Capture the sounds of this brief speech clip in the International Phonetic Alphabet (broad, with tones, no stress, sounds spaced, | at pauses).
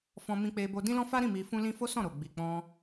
f ɔ̃˧ m ĩ˧ k͡p e˧ b o˧ d ĩ˦ l ɔ̃˦ f a˦ ɾ ĩ˦˨ m i˧ f ũ˦ l ĩ˦ f o˦ s ɔ̃˦˨ ɾ o˨ ɡ͡b i˨ k͡p ɔ̃˧